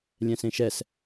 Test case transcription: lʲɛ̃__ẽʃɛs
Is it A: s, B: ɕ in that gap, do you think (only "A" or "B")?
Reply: A